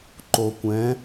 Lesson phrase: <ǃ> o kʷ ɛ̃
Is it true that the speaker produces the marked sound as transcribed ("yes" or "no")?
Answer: yes